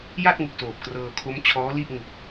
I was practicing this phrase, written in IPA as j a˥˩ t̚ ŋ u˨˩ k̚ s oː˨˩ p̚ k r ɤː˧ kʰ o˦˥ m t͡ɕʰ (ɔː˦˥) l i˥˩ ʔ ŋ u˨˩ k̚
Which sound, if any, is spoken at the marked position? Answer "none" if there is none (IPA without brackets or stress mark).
ɔː˦˥